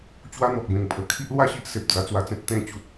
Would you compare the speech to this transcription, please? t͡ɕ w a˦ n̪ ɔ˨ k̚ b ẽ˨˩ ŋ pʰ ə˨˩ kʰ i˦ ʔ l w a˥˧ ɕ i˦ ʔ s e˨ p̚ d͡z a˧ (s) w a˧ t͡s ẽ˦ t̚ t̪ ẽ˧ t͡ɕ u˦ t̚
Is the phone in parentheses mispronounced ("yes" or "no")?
yes